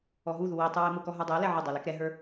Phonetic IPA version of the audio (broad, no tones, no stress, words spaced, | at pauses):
ɔɦuðu witˤu wɛmʊkɔ ɦə˞dˤɛo̯lɛ ʕʊdˤə˞ lɛkɾɛɦə˞